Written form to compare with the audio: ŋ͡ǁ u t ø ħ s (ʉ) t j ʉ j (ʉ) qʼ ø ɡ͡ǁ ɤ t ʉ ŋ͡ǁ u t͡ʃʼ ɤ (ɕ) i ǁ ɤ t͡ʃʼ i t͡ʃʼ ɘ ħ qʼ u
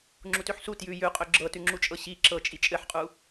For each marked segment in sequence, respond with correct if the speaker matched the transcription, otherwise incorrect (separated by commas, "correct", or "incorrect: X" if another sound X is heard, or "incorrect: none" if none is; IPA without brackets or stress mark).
incorrect: u, correct, correct